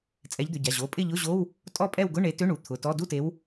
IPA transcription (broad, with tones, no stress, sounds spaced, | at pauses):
t͡sʼ ɛ˨˦ ʎ d̪ ʏ˩˧˩ ɟ a˩˧˩ ʑ o˩˧˩ pʼ ɪ˥˨ ʎ ʊ˧˥˧ ʑ o˧˥˧ w | tʼ ɔ˥˨ pʼ ɛ˥˨ w ɡ ʊ˧˥˧ ɳ e˨˦ t ʏ˧˥˧ ɳ u˩˧˩ t̪ʰ ʊ˩˧˩ t ɔ˧˥˧ d u˥˨ t e˨˦ w